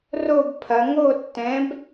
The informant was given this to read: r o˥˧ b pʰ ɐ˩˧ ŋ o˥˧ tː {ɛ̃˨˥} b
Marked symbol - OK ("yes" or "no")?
yes